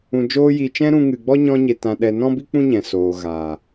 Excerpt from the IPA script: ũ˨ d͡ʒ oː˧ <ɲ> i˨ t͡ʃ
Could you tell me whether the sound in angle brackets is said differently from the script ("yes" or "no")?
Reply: yes